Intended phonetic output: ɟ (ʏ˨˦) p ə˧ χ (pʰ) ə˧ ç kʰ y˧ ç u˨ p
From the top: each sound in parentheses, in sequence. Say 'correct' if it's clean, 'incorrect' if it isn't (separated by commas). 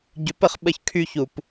correct, incorrect